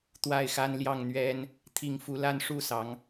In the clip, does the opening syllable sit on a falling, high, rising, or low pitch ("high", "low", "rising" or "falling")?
falling